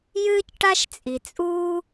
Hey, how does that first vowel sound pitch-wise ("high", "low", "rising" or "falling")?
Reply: high